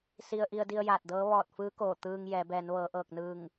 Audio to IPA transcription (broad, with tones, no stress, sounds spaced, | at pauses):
s i˧ ə̯ ʔ i˧ ə̯ d i˧ ə̯ j aː˧˩ t̚ d ɤː˧˥ ʋ ɔː˧˩ t̚ f ɯː˧˥ k oː˧˩ t̪ ɯː˧ ŋ j ɛː˩˧ b ɛː˩˧ n ʋ ɤː˩˧ ʔ ɤː˧˩ k̚ n ɯː˧˩ ŋ